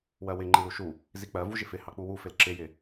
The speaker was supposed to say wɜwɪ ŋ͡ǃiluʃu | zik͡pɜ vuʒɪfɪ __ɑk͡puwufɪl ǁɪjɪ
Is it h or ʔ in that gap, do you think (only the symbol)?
h